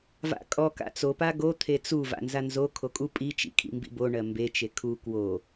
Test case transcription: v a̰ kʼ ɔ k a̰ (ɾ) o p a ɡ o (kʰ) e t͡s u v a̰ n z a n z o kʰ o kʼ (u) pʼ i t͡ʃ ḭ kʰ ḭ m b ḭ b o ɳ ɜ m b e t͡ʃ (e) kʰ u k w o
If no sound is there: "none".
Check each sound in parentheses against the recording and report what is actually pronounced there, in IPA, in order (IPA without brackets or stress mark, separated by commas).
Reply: t͡s, t̪ʰ, u, e